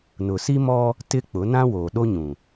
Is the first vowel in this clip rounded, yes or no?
yes